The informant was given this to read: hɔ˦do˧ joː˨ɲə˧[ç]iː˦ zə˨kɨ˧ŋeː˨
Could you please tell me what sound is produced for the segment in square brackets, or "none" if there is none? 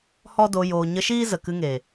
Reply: ʃ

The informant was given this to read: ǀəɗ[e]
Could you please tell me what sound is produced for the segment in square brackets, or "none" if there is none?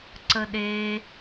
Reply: e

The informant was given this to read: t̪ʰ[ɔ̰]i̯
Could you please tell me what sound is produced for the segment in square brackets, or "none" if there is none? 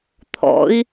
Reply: ɔ̰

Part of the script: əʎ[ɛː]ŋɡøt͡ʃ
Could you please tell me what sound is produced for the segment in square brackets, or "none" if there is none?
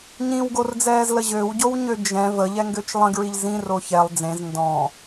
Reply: ɛ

